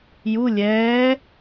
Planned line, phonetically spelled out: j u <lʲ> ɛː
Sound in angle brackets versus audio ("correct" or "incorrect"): correct